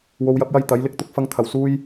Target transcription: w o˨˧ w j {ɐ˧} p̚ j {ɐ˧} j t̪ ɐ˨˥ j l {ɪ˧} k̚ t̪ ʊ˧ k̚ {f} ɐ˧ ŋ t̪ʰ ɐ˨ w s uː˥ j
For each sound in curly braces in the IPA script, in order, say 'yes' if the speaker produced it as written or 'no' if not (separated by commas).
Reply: no, yes, yes, yes